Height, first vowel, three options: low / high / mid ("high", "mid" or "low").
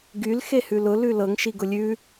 high